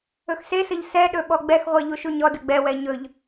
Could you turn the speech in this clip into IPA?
ɵxsesəʎ sɛɗɵ ɓɔɡ͡bɛxʁʷɜ ʎuʃuɲɔdɵ ɡ͡bɛwɛ ɲɵʎ

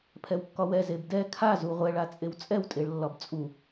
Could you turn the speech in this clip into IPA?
pʰɛwkːɒwɛ zebdɛ kʰa zuʁʷɛɭ at͡sʼewt͡sʼɛw tʼeɭlːɒbt͡sʼu

